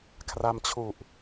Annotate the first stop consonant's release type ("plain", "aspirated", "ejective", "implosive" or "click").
aspirated